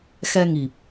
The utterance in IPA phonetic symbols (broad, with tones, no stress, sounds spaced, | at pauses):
x ɛ˧ ŋ i˨˩ p̚